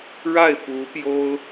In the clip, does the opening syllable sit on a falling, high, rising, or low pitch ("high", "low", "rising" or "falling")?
falling